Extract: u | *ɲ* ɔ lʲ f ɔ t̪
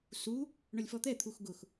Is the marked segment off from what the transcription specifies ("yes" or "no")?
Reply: yes